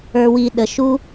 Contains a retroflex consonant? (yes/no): no